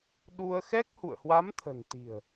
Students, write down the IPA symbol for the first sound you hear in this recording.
ɗ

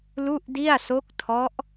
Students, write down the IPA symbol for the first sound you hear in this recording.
l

